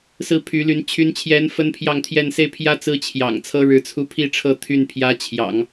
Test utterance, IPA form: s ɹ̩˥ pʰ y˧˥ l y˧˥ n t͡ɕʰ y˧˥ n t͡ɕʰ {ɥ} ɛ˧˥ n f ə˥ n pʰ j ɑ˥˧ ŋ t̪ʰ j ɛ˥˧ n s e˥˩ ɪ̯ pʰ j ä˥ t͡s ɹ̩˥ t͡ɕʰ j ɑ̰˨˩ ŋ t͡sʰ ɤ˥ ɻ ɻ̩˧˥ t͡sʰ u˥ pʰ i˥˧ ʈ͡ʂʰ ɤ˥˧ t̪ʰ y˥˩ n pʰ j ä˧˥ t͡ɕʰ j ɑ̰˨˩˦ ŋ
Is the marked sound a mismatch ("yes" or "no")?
yes